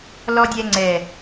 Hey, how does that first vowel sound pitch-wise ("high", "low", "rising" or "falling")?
high